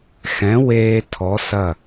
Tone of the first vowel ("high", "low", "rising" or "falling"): rising